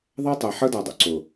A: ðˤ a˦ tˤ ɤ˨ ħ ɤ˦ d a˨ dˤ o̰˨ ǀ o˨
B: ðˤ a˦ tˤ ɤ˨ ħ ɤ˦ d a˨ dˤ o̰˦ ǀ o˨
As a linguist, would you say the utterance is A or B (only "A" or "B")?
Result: A